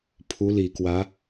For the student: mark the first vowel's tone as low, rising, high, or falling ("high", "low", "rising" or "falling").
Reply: rising